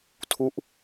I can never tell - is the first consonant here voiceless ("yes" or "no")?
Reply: yes